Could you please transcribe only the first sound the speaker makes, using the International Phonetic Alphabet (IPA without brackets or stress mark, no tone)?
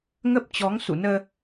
ŋ